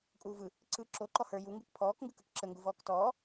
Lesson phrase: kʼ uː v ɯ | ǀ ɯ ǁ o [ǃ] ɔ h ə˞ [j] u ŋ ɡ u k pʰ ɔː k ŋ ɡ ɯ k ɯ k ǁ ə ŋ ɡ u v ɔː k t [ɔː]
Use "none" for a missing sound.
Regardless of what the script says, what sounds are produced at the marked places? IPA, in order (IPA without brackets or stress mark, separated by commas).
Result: ǃ, j, ɔː